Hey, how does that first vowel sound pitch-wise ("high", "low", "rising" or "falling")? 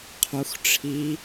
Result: low